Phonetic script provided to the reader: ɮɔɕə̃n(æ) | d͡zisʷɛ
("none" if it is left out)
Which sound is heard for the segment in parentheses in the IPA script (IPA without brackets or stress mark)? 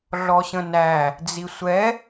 æ